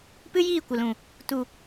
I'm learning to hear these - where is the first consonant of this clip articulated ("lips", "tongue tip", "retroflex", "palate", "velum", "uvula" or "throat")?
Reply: lips